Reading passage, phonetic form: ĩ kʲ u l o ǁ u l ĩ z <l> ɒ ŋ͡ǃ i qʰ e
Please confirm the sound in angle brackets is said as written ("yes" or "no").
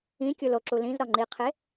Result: no